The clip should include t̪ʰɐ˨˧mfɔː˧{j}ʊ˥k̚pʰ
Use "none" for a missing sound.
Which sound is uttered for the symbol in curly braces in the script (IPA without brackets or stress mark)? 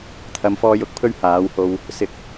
j